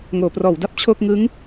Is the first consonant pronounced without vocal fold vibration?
no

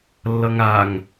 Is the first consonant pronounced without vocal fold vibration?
no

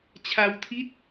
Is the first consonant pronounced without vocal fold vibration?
yes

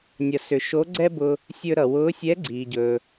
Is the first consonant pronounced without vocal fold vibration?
no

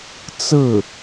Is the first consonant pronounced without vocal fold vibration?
yes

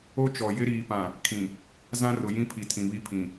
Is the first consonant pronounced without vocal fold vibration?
yes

